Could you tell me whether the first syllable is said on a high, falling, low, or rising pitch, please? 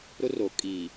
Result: high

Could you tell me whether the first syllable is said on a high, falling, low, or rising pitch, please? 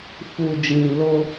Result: low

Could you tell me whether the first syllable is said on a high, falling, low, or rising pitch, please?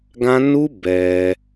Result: high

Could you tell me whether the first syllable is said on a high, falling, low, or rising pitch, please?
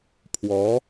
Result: rising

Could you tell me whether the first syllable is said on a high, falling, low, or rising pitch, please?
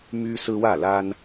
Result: high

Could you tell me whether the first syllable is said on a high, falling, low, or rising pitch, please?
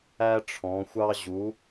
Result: high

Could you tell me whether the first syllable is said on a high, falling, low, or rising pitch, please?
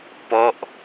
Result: falling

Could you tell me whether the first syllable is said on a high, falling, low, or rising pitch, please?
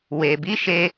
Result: low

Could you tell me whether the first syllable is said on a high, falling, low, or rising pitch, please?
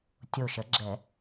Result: low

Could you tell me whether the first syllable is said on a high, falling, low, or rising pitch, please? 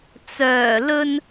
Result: low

